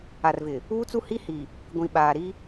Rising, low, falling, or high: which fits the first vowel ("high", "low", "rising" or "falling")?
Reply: low